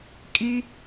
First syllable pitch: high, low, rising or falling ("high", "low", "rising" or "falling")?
high